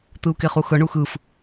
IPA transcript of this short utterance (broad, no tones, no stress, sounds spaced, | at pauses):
t̪ ɯ u̯ k e χ u x ɤ ɳ u x ɯ f